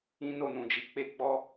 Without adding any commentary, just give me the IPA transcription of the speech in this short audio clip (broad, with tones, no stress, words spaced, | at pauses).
ĩ˦no˦˨nũ˨d͡ʒi˨˦ k͡pe˦ɡ͡bɔ˦